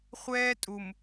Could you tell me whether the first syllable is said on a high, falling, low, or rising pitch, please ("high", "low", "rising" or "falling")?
high